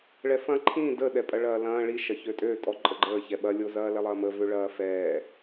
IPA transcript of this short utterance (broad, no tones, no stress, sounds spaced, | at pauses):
ɭ ɛ f ɐ̃ ǃʰ ĩ d ə ɗ ɛ pʼ ɐ ɭ ɐː l ɐ̃ː ɭ i ʃ ɐ ç ø tʼ ø tʼ ɔ ǃʼ ə ɡ͡ǃ əː ç ɛ ɓ ɐ lʲ o z ɐː l ɛ lˠ ɐː m ə v ø ɭ ɐː f ɛː